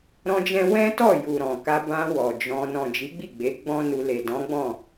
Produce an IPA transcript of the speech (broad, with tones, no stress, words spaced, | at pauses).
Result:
ɾɔ̃˦d͡ʒɛ̃˦ wɛ̃˦tɔ˦˨ju˨ ɾɔ̃˨ka˧ bã˧ wɔ˨d͡ʒɔ̃˧ nɔ̃˨d͡ʒi˨˦ɡ͡bi˦˨ɡ͡be˨˦ ɡ͡bɔ̃˦nu˧ le˨ dɔ̃˨˦ɡ͡bɔ̃˦˨